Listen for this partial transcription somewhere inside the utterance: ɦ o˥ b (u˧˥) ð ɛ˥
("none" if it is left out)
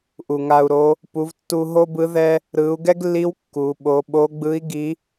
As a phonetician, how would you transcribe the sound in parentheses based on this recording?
ɯ˧˥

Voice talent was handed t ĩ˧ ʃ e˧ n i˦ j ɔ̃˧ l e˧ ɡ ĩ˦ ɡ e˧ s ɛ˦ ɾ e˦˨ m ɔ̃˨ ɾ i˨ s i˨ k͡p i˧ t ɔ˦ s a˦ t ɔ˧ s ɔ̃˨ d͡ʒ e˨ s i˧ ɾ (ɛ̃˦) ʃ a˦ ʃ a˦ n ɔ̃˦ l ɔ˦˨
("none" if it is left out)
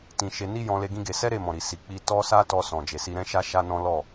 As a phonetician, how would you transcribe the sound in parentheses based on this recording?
ɛ̃˦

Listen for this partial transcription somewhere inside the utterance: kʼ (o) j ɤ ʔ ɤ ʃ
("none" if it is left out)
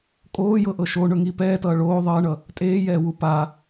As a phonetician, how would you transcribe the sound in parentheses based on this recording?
oː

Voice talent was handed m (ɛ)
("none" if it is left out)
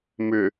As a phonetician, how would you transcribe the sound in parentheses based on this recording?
ʏ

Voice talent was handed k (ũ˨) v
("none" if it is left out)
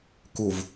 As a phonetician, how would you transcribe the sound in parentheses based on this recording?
u˨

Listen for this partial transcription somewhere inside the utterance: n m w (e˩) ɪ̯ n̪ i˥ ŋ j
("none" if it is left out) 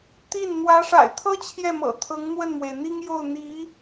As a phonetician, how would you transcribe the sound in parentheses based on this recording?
e˩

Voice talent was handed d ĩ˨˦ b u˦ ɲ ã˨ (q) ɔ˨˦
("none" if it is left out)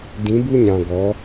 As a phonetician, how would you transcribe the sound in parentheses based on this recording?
ɡ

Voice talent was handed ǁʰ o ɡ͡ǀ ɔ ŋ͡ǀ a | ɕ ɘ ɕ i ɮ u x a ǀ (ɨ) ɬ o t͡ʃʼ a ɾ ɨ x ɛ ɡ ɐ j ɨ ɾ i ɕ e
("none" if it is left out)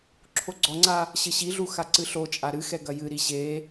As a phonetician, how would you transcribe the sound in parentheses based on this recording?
ɨ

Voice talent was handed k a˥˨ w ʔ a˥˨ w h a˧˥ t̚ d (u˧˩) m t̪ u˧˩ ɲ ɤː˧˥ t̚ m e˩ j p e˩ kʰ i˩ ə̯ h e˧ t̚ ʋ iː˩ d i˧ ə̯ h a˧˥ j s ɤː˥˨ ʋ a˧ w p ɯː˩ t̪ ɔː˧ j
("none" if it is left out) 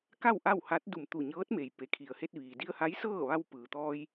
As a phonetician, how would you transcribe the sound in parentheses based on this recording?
u˧˩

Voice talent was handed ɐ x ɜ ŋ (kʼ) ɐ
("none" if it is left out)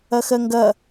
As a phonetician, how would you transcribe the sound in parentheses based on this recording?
ɡ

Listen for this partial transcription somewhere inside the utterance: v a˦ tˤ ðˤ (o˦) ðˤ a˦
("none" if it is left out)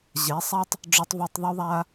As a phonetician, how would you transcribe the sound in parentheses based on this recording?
u˦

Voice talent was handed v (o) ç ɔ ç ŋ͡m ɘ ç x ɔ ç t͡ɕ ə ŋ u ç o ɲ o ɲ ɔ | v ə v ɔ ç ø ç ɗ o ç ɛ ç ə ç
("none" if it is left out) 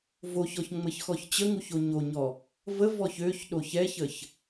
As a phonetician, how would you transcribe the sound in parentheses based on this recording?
o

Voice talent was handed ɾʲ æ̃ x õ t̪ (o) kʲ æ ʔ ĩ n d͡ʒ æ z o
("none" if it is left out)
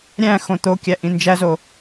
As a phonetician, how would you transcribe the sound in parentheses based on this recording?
o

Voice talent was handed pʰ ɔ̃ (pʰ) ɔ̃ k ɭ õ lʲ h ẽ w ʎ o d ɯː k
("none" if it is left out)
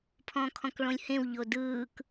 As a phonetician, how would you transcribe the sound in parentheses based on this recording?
kʰ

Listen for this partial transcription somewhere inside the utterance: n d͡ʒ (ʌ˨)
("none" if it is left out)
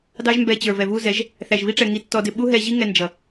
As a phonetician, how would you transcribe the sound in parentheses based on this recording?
ʌ˨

